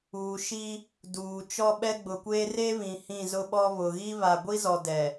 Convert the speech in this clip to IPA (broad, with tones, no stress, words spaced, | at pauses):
uː˨ʃi˦ | duː˨ t͡ʃɔ˦ɓɛ˦ɡ͡bʊ˨kʷeː˦ re˦βĩ˨ hĩ˦˨zʊ˦ɓɔ˦ βʊ˨ɣi˦ βa˨ɡʷi˦zɔ˨ dɛ˨